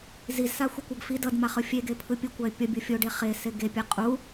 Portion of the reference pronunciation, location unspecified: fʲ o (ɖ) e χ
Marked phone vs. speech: correct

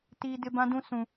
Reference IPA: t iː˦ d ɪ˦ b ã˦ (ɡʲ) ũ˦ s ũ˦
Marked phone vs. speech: incorrect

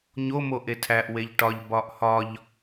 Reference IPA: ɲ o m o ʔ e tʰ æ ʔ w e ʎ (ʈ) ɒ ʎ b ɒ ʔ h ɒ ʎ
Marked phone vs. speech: correct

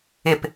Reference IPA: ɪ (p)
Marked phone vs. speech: correct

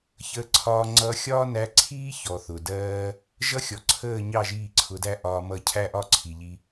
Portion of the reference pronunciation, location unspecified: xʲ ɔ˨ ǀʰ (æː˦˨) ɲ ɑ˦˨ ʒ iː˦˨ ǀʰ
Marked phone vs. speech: incorrect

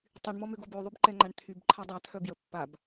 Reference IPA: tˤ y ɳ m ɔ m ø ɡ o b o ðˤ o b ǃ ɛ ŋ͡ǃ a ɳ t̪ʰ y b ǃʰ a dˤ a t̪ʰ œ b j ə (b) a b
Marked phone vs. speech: incorrect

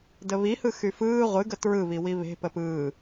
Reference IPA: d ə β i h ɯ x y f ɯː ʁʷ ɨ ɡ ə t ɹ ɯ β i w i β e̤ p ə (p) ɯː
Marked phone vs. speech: correct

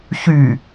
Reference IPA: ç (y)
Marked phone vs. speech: correct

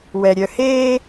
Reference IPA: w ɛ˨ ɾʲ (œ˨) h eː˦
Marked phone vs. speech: correct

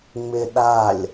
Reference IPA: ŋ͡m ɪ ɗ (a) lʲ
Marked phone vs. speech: correct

